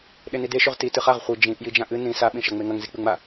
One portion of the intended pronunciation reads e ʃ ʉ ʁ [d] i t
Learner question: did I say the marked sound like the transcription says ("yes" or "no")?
no